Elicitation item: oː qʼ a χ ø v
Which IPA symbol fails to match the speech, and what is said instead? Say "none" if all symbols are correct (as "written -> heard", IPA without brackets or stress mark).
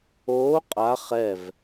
ø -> ɛ